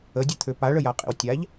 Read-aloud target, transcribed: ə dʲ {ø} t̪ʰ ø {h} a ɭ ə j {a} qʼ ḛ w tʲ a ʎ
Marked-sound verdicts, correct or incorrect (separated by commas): incorrect, incorrect, correct